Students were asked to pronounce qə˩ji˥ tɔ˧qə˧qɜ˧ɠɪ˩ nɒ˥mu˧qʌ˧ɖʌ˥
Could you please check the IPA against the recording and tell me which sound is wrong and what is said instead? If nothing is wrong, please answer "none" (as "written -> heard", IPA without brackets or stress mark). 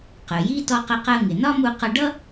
ɠ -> ŋ